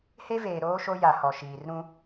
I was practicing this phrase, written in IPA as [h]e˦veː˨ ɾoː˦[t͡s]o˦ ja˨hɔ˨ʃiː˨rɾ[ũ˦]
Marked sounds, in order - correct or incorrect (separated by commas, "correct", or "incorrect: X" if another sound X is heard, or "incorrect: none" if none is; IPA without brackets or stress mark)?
correct, incorrect: ʃ, correct